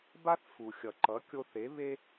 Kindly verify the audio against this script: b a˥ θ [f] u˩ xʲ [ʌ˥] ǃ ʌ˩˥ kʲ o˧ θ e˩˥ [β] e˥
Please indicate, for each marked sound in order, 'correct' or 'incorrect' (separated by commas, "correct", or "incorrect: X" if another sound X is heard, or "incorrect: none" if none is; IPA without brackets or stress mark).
correct, incorrect: ʌ˩, correct